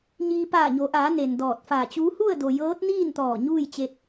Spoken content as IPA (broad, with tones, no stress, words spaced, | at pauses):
ɲiː˧ paː˧˩ɲo˩˧ʔaː˩˧ ne˩ndɔː˧˩t̚faː˧˩t͡ɕuː˧˥ hu˥˨ə̯do˩ jɤː˧˥t̚niː˥˨nt̪ɔː˧˩ ɲuː˥˨jt͡ɕe˧t̚